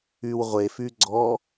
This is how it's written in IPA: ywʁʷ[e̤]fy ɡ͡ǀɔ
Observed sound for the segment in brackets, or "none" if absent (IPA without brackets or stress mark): e